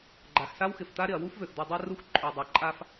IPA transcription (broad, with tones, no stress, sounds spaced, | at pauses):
ɡ͡ǃ a˨ x s a˦ w x ɪ˨ f t̪ a˦ ɾ ɪ˨ ɐ̯ w u˦ f v ø˨ x d̪ u˨ dˤ a˦ r u˦ x ǃʼ ø˨ dˤ a˨ ǃʼ a˦ f